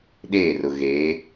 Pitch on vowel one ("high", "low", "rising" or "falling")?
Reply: falling